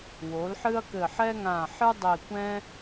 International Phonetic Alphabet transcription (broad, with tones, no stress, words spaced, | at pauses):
wo˩˥lħɨ˥ɐ̯kɘ˧˩ ħɛ˥ŋã˧˩ħɨ˥ dˤi˧˩ kʷɛ̃˥